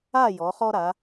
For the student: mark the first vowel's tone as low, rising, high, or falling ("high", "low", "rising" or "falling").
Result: falling